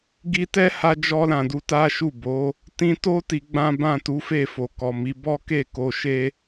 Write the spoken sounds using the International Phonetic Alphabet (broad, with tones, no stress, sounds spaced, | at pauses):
ɡ i˧ t ɛ˦ h a˧ d͡ʒ ɔ˧ l ã˨ d u˧ t a˦ ʃ u˦˨ b o˨˦ | t ĩ˧ t o˦ t i˧ ɡ͡b ã˦ b ã˦˨ t u˨˦ f e˦˨ f o˨ k ɔ˨ m i˨˦ b ɔ˦ k e˦˨ k o˧ ʃ e˦